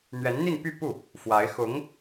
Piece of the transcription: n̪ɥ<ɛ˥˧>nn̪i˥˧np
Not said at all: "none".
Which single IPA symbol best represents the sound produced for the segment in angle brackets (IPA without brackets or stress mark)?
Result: ɛ˧˥